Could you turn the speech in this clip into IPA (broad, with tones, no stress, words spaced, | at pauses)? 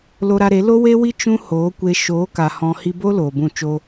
lo˧ɾa˧ɾe˨˦ lo˦we˦wi˦ t͡ʃũ˦hoː˨˦kʷe˧ ʃoː˨˦ka˨ hɔ̃˧ hi˧bo˦ loː˨bũ˦˨ t͡ʃo˧